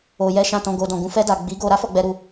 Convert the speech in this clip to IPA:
o˨ j ɛ˧ ʃ ã˨ t ɔ̃˨ ɡ o˨ d ɔ̃˨ ɡ ũ˨ f ɛ˧ d a˨ ɡ͡b i˨˦ ɡ o˧ ɾ a˦ f ɔ˧ ɡ͡b ɛ˧ ɾ u˧

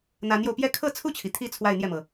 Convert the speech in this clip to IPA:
n̪ a˧˥ n j o˧ ʊ̯ p j ɛ˥ kʰ ɤ˥˧ t͡sʰ u˥˩ t͡ɕʰ i˩ t̪ʰ i˧˥ t͡sʰ w a˥˧ ɪ̯ n̪ j ɛ˥˩ m ɤ˩

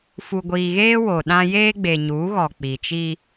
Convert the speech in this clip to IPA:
f u˨ ɡʷ iː˨ ɣ eː˦ w o˨ ɗ ã˦ j eː˦ ɡ͡b e˨ ɲ uː˨˦ ɣ ɔ˨ k͡p i˨ t͡ʃ i˦

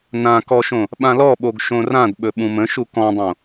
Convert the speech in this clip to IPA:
n ã k ɔ ʃ õ | ɓ ã l ɔ ɓ o ɡ ʃ õ r ã d ɓ ɵ ɓ ũ m ə̃ ʃ u k ɔ̃ dˤ õ

